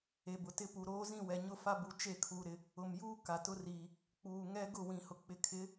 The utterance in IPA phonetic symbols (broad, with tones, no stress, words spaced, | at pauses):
e˨ bʊ˨tɪ˦ pu˨ɾoː˦zĩ˦˨ wɛ˨ ɲʊ˦˨fa˦bu˨ t͡ʃe˦˨kʰuː˨ɾɪ˨ | ʊ˨mjuː˦ ka˨tʊ˦riː˨ | k͡puː˨ŋɛ˦ ɡʊ˦˨wĩ˨hʊ˨ k͡pɪ˨kʰɪ˨˦